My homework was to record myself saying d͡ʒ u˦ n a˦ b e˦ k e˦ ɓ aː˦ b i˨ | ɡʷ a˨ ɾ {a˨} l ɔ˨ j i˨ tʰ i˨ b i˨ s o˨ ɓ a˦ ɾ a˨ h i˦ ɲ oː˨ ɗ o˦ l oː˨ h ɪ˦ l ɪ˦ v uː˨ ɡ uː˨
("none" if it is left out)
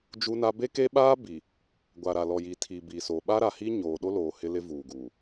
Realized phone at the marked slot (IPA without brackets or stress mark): a˨